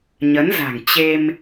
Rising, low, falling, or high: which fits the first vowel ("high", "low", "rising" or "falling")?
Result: rising